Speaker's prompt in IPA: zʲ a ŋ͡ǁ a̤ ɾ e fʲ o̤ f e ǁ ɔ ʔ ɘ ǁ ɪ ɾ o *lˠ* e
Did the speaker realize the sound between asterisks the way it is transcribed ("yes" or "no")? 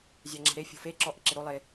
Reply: yes